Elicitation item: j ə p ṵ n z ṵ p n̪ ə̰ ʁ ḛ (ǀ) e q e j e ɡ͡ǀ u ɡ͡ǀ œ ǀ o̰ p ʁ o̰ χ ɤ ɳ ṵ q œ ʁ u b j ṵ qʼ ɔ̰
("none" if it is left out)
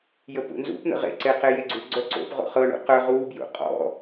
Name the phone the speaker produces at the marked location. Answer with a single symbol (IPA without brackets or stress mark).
ǀ